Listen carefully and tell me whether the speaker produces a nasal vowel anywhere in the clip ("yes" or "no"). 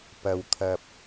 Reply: no